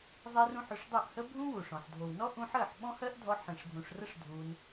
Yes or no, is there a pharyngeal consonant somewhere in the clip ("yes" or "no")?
yes